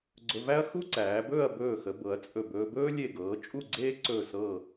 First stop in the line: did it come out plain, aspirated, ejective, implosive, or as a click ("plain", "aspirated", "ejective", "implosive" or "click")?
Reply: click